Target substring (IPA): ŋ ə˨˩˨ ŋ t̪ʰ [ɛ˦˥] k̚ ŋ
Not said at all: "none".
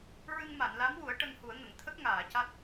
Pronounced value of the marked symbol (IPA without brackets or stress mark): ə˦˥